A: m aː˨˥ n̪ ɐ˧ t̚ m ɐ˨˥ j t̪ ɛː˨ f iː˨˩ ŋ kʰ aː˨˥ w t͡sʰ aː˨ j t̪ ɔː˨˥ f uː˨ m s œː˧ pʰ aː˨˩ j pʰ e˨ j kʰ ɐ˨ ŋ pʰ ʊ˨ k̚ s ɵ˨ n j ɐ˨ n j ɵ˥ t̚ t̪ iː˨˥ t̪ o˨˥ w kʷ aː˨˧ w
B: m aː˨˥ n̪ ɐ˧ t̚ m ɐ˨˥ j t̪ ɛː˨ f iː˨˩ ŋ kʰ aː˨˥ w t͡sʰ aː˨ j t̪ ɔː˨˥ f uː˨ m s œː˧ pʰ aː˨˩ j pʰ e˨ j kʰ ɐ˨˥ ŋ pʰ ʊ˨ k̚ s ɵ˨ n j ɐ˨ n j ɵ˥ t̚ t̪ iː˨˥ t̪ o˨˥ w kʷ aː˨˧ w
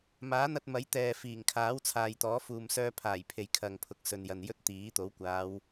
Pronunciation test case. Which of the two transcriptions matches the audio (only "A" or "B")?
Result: A